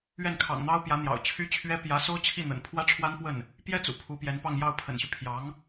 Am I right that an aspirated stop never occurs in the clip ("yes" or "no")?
no